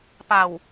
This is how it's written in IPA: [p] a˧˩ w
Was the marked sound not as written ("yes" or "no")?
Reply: no